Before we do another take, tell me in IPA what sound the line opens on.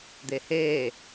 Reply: d̪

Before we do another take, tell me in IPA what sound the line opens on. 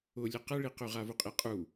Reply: ʊ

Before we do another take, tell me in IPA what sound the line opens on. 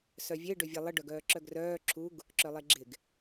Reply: s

